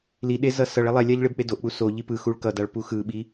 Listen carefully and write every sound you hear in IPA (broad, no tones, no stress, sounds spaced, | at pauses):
l i ɗ e z ʌ s ʌ ɭ ɛ lˠ ɛ lʲ a ʎ ɭ e b k͡p e d o ʔ k͡p u s o ʎ i p ɯ x u ɭ k ʌ d a ɭ p u x ɯ ɓ i